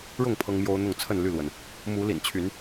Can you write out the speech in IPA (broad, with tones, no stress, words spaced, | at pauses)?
ɻʊ˥˨ŋ pʰɤ˦ŋmjo˦ʊ̯n̪ʊ˥˨ŋ t͡sʰə˥˨nly˥˨lwə˩n | mu˨˦lḭ˨˩nt͡ɕʰy˨˦n